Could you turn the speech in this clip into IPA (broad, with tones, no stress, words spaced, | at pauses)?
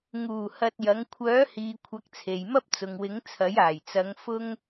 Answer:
ŋuː˨˩ hɐ˧t̚jɐ˨˥ŋ kʷʰœː˨˥hiː˨ kʷʰɐ˨˥k̚t͡sʰe˨jmɐ˥p̚ t͡sʊ˨ŋwɪ˨˥ŋt͡sʰɐ˨˥j aː˨˩jt͡sɐ˨˧ŋ fʊ˥ŋ